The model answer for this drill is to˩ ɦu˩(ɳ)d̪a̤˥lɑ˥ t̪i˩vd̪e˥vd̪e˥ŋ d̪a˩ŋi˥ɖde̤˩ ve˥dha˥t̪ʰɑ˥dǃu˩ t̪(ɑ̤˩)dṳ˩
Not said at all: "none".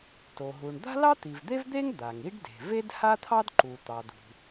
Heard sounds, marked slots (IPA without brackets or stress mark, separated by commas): ɳ, ɑ˩